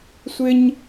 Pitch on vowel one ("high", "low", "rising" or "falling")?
high